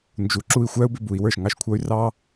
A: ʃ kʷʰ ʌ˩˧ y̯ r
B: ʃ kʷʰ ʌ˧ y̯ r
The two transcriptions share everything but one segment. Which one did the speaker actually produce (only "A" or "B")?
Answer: B